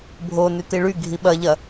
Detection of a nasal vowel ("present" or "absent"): absent